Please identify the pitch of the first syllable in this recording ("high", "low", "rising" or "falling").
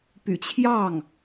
low